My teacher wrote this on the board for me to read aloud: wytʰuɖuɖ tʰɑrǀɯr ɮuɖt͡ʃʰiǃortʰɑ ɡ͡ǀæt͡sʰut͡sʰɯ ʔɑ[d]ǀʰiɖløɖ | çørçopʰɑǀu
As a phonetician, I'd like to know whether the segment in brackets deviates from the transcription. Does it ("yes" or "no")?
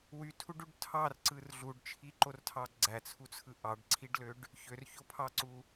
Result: yes